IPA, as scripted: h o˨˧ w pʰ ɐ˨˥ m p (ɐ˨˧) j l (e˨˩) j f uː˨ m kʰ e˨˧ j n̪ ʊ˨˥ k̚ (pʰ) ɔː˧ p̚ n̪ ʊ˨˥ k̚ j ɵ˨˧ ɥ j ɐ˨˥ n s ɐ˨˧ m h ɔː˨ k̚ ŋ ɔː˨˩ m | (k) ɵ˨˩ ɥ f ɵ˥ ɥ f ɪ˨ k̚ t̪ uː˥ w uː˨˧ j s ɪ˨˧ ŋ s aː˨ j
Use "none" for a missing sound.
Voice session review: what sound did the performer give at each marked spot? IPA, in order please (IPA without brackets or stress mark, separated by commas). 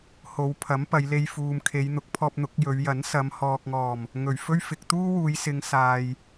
ɐ˨˧, e˧, pʰ, ŋ